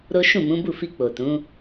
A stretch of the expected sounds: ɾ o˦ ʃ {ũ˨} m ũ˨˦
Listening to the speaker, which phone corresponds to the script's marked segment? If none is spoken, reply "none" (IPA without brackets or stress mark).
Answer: ũ˦˨